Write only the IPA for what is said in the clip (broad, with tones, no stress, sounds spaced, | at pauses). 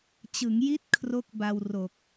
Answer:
t͡ɕ ɯ˩˦ ŋ j i˥˩ t̚ kʰ r o˥˩ k̚ b a˧ w r o˨˩ k̚